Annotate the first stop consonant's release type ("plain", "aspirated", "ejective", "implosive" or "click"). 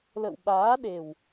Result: implosive